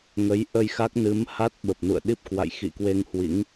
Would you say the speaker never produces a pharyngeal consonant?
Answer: yes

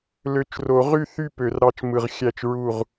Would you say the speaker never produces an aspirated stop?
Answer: yes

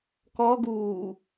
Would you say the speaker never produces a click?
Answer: yes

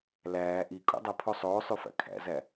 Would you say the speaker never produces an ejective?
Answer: no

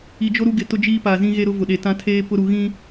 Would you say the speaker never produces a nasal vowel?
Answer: no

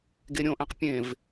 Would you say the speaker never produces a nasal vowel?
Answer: no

